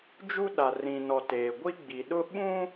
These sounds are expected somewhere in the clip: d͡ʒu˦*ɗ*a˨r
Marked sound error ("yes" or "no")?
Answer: no